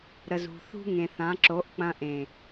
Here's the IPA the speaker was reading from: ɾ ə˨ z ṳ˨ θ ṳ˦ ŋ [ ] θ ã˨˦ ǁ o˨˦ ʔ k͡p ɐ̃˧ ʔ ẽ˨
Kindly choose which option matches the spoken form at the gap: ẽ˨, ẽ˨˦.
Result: ẽ˨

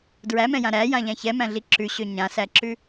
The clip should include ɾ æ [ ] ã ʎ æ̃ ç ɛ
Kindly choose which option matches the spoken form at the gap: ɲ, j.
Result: j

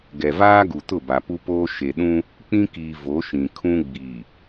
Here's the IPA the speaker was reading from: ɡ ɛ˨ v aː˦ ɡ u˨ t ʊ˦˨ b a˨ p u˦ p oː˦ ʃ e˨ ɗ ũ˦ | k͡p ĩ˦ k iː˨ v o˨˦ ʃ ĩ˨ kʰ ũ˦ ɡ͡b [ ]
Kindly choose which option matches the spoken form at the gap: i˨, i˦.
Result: i˨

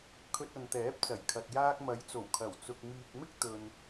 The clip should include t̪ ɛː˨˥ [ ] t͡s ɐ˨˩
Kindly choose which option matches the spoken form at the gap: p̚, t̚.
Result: p̚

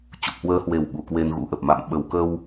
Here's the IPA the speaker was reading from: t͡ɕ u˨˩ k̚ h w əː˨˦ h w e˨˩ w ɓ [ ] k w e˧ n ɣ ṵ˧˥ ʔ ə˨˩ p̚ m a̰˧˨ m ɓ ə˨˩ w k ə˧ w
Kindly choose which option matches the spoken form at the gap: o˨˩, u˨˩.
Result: u˨˩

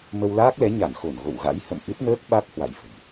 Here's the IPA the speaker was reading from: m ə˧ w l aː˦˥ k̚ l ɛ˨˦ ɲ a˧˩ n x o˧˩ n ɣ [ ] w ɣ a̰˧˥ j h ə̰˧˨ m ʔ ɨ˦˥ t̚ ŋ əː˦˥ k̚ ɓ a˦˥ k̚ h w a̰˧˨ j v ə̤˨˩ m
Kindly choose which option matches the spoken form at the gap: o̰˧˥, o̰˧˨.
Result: o̰˧˨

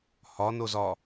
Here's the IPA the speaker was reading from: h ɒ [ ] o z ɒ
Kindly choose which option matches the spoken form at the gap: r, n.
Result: n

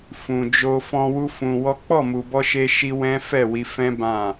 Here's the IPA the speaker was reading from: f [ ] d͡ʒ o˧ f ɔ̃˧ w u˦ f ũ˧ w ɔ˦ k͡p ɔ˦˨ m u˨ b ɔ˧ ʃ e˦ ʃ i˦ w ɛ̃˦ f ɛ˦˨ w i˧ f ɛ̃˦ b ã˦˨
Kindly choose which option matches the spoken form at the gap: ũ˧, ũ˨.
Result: ũ˨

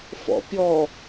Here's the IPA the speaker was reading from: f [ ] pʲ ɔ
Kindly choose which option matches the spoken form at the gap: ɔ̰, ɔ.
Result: ɔ̰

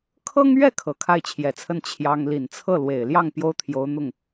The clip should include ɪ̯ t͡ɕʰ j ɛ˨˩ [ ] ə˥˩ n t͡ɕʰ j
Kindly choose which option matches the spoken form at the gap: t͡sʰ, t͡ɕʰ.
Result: t͡sʰ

